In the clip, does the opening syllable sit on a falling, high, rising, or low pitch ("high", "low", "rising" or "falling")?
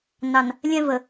low